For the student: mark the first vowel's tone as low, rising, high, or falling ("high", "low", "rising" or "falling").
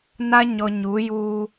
high